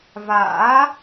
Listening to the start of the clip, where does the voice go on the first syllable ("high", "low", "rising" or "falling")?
rising